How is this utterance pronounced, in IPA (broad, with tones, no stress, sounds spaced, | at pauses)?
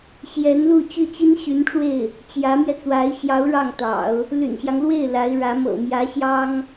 ɕ j ɛ˧˥ n l u˥˧ t͡ɕ y˥˩ t͡ɕ i˥ n ɕ y˧˥ n ʈ͡ʂ w e˥˩ ɪ̯ | t͡ɕ j ä˧˥ m j ɛ˧ t͡s w a˧˥ ɪ̯ ɕ j ɑ˧˥ ʊ̯ ɻ ɑ˥˩ ŋ t̪ ɑ̰˨˩˦ ʊ̯ | l y̰˨˩ n ɕ j ɑ˦ ŋ l w e˥˩ ɪ̯ l a˧˥ ɪ̯ ɻ ä˧˥ m ɤ̰˨˩ m j ä˧˥ ɕ j ɑ˥ ŋ